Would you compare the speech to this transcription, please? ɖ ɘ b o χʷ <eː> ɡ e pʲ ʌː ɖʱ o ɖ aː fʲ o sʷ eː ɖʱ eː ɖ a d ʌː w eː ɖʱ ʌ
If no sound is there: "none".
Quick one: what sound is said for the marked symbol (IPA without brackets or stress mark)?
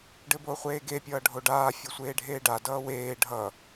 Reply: eː